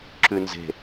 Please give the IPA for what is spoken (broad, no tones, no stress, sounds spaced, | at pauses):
ǁ ʉ n z e̤